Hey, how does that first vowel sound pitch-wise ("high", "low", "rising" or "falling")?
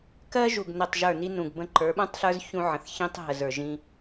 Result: high